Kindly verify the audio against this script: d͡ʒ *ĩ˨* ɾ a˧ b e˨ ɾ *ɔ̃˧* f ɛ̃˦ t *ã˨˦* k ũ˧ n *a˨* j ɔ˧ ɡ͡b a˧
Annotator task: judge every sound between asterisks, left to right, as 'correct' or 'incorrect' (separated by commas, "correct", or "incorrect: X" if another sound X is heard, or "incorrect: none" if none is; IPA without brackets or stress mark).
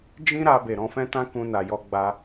incorrect: ĩ˦, correct, incorrect: ã˦, correct